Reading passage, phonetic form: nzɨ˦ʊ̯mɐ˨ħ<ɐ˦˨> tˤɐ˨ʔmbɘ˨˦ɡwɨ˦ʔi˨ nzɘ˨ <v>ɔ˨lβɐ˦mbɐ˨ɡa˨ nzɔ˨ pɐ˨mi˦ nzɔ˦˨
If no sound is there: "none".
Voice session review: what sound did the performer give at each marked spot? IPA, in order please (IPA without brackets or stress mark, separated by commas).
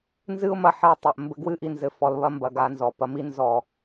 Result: ɐ˦˨, f